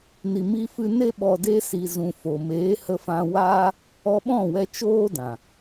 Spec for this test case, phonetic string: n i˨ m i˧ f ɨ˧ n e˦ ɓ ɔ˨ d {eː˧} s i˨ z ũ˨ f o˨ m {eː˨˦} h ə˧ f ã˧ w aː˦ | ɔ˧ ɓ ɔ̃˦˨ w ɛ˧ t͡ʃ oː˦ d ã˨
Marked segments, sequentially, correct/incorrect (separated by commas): incorrect, correct